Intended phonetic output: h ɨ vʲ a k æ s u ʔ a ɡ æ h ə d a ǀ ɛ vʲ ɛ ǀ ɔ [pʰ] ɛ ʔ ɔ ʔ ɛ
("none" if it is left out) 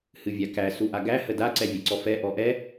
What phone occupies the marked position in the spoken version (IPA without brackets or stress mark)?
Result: f